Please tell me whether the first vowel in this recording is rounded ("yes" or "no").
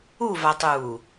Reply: yes